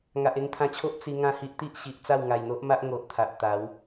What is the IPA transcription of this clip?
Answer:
ŋa˨ʔe˧ŋt̪ʰã˧t͡ɕʰo˦ʔ t͡si˧ ŋã˥˧hi˦ʔt̪i˦ʔ ɕi˨ʔ t͡sa˥˧wŋa˨˩jn̪o˦ʔma˦ʔ ŋo˨ʔ t̪ʰa˨ʔt̪a˨˦w

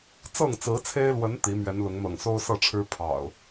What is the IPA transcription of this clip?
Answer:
t͡sɤ˥˨ŋt͡sɹ̩˨˦t͡sʰe˦ɪ̯lwə˨˦n t̪i˨˦ mɥɛ˨˦nlʊ˨˦ŋn̪ɤ̰˨˩ŋ so˦ʊ̯sɤ˥˨ʈ͡ʂʰɻ̩˦ pʰɑ̰˨˩ʊ̯

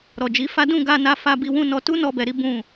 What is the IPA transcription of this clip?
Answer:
ɾɔ˨d͡ʒi˨˦fa˦ dũ˦˨ɡa˧na˧ fa˧ bi˧wũ˧ nɔ˧ tu˦nɔ˧bɛ˨ɾi˨˦ bũ˦˨

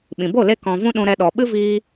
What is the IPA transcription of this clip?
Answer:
ɓĩ˨bo˦˨ le˦ kɔ̃˧ vũ˦ɗũ˧ɾɛ˧ɗɔ˨ ɓɨ˦viː˧

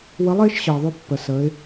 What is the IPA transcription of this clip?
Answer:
wə˧˥lˠɪː˧˥ʃ ɕəː˩ðˤʏː˧ pːə˩səː˩˧ɪ̯

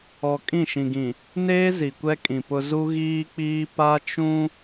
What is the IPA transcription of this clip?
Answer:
ɔ˨ kʼĩ˦˨ʃĩ˨ɡĩ˨ | neː˦ zi˨kʷɛ˦kʼĩ˨pʊ˦ zu˦ ɣiː˦k͡piː˦ pa˦t͡ʃũ˦

